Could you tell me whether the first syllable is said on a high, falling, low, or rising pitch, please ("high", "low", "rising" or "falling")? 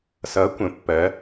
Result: rising